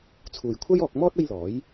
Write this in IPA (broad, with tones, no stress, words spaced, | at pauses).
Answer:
t͡sʰuː˨jkʷʰɐ˥jɔː˧k̚mɔː˥t̚ ɐ˥jlɔː˨˥j